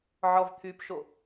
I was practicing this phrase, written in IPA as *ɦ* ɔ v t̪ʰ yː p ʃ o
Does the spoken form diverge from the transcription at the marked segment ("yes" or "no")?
yes